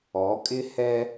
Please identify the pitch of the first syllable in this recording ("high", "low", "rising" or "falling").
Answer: rising